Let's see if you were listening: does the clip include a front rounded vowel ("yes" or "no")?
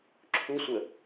no